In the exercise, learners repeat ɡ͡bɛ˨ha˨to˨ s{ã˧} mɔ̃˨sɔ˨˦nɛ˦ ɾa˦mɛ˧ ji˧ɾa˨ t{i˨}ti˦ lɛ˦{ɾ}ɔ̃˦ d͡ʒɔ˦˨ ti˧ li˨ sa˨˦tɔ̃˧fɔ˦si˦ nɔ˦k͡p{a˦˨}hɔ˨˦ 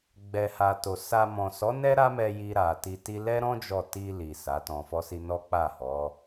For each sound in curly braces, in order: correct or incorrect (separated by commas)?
incorrect, incorrect, correct, correct